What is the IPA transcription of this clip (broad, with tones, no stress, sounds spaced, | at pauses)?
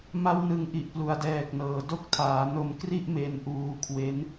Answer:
m a˦˥ w n ɯ˨˩ ŋ ʔ i˨˩ ʔ p l u˩˦ a̯ d ɛː˨˩ k̚ n ɤː˩˦ d o˥˩ k̚ tʰ aː˩˦ n o˧ m k r i˥˩ ʔ m e˧ n ʔ uː˧ kʰ w e˦˥ n